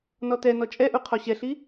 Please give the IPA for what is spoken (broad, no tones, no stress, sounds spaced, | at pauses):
n ɔ t ɛ n ɔ t͡ʃʼ ɛ ʔ u qʰ ɔ ɕ ɛ ɬ i